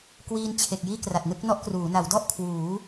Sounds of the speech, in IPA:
kwiː˧nt͡ɕʰe˨˩k̚ jiː˥˩kra˨˩t̚nɯ˥˩k̚ nɔ˥˩ʔkruː˩˦ na˩˦wdɔ˥˩ʔ kʰwuː˩˦

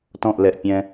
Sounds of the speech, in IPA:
tɔ̃ʔlɛʔpʲɛ̃

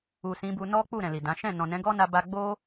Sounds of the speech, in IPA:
u˨sĩ˨˦bu˧ nɔ˦k͡pu˦˨ ɾɛ̃˨li˨dã˨˦ ʃɛ̃˦˨ nɔ̃˨nɛ̃˨˦ɡɔ˦na˧ ba˧ɡ͡bo˦

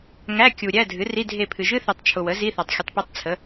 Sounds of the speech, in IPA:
ŋæ˧˥˧kʲu˨ ɾʲæ˧˥˧dʱɨ˩˥ ri˧˥˧dʱe˦˨pʰɨ˨ ʒɨ˥θe˨tˤ t͡ʃʰʊ˨wə˩˥ zi˧˥˧θa˨tˤ xʲʊ˨tˤpe˦˨tˤt͡sʰə˩˥

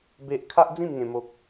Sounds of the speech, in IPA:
be˦ʔ kʰa˦ʔd͡zĩ˥˧mŋẽ˧ mo˦k̚

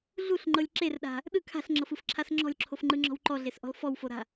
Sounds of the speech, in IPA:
ɮuɬŋ͡ǃɤlʲ ǁerɗa̤ | ɗɯ kʰa̤ɬŋ͡ǁɤfɯfǁʰas ŋ͡ǁɔ̤lʲǁʰofŋ͡ǃɯŋ͡ǁɔ̤w ǃɔɮesʔɔ̤l fɔwfoɾa̤

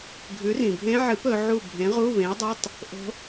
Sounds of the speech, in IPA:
ɡʱʉ˨˥rĩ˩bʱẽ˦˥ ʕɨ˨˥p ɵ˩˧ʕu˦˨ bʱẽ˨˥ʁu˧˥˧βẽ˨˥ə̯dˤo˧˥˧tˤ | ʔo̤˦˥

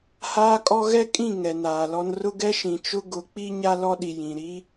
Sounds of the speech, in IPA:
haː˦kʼɔ˦ ɣɛ˦kʼĩ˦˨ ŋɛ˨naː˨lɔ˦n rʊ˦ɡɛ˦ʃĩ˨t͡ʃʊ˦ ɡʊ˨˦k͡pi˦ ɲa˦lɔ˦ɗi˨ jĩ˨ɾi˦

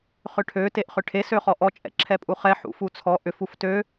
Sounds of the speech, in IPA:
χʏʈʰø teʔχʏʈʰe søχɔʔɔ t͡ʃʼɛ̰ǁʰɛpʼuχɛ ħṵfut͡sʰɔ ʔʏf uftø

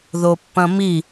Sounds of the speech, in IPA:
ðopːɐ̃mi

